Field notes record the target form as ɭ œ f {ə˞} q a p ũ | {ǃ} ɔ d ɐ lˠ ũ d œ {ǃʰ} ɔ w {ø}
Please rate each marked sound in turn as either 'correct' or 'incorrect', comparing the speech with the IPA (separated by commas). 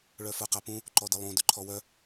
correct, correct, correct, incorrect